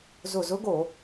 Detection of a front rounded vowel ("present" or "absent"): absent